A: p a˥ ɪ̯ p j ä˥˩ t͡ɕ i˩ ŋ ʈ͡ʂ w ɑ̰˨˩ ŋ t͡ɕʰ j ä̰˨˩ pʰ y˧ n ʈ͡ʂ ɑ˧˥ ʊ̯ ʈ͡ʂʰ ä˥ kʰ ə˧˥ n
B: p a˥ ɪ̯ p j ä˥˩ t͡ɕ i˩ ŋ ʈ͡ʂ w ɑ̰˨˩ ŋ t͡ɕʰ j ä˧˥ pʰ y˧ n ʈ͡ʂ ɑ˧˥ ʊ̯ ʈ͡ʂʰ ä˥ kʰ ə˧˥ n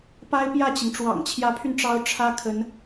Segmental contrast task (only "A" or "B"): B